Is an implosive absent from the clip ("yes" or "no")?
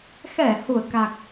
yes